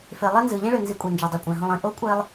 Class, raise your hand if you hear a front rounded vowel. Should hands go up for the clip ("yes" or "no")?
yes